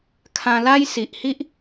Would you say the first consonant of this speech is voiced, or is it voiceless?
voiceless